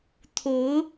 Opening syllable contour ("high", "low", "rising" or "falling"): rising